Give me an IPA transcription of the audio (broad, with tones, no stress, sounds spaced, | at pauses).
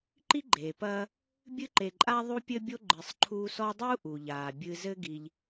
ǃ i˥ ɡ͡ǃ eː˩ p ɐː˦ | bʲ ɨ˥ ǃ e˨ ǃʼ a˥ ðˤ u˦ pʲ ɘ˦ bʲ o˦ ɡ͡ǃ ɨ˨ sˤ ǃʰ u˦ s ɔ˥ dˤ u˥ ʔ u˩ ʎ aː˩ bʲ ɨ˨ z ɘ˦ ɡ i˨ ʎ